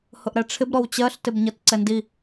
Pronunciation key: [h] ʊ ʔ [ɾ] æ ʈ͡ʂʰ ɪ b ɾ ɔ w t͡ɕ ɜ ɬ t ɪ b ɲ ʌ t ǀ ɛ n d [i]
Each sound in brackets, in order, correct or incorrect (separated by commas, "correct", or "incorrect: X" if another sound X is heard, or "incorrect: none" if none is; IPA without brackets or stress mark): correct, correct, correct